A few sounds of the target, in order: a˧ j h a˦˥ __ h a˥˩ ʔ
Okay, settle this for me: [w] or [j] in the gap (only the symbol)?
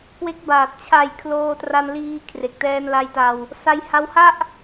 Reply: w